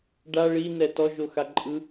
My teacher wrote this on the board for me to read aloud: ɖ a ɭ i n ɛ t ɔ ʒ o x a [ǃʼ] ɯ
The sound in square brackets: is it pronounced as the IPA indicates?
yes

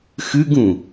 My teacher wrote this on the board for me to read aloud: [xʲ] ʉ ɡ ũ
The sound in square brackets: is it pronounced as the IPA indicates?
no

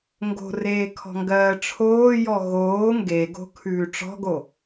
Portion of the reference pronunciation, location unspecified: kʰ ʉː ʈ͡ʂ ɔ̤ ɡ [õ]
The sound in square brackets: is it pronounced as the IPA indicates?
no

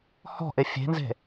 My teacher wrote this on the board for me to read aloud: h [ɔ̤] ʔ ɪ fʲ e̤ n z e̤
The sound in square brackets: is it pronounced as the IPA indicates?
yes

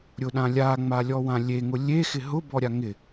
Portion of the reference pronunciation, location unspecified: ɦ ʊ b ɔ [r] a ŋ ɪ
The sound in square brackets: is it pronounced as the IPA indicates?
no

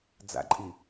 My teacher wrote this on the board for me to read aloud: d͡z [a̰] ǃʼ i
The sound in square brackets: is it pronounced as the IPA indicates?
yes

